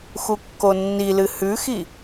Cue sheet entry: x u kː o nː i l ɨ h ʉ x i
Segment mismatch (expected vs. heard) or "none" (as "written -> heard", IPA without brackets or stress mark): none